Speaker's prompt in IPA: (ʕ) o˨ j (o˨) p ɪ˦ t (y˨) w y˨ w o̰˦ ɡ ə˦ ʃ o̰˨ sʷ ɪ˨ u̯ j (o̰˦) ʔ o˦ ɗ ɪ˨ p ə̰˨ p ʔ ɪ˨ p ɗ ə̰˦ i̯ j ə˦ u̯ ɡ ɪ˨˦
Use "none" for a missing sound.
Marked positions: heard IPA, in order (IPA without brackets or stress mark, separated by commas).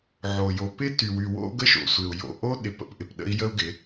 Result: ʕ, o˨, y˨, o̰˨